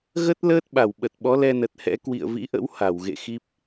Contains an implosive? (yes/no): yes